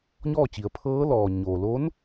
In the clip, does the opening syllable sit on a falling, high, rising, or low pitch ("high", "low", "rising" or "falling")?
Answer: falling